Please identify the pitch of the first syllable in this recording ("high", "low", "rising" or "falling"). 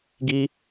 high